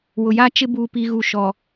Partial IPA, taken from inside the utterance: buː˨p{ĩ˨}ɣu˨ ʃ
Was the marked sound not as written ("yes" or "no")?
yes